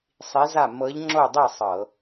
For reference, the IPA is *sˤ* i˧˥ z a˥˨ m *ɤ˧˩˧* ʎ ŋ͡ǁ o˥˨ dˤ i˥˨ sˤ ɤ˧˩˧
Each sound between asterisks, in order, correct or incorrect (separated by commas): correct, incorrect